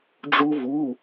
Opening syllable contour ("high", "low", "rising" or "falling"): high